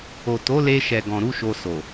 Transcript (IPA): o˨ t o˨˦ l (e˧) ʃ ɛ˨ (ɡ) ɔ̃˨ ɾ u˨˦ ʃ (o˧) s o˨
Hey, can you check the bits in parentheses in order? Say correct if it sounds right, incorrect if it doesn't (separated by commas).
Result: correct, correct, correct